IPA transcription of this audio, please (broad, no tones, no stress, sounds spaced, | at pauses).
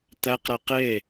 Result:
t̪ æ q ɾ æ q e